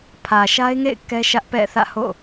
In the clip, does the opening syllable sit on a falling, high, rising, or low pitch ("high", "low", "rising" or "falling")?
low